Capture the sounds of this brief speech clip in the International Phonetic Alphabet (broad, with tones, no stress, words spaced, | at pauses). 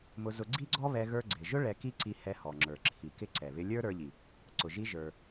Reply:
mʊ˧zʊ˧ ɡ͡ǀi˥ɡ͡ǀɔ˥βɛ˧ ɣə˞˥ ɡ͡ǀɪ˩ʒʊ˥ ɭɛ˧ki˥ǀi˧ hɛ˧hɔ˩ŋ͡ǁə˞˩ ǁʰi˩kɪ˧ ǀɛ˩βɪ˧lʲə˞˥ ɾə˞˧ʎi˩ | ǀʊ˩ʒi˧ ʒə˞˩